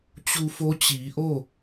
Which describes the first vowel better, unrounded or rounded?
rounded